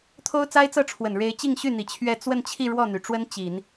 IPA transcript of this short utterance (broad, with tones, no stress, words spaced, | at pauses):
t̪ʰo˥ʊ̯t͡sa˥ɪ̯t͡sɤ˥˩ʈ͡ʂʰwə˨˩n ɻe˧˥ɪ̯t͡ɕi˥˧ŋɕy˥˩n̪i˨˩ t͡ɕʰɥɛ˥˧ t͡swə˥˧nt͡ɕʰi˥˧ ɻwɔ˥˩n̪y˩ʈ͡ʂwə˥n t͡ɕi˨˩˦n